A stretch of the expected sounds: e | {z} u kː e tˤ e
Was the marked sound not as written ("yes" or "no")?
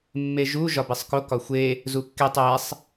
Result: no